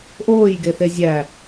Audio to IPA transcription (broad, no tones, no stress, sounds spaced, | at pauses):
ʔ oː j ɡ e θ e zʲ æ